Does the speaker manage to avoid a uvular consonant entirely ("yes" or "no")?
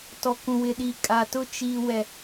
yes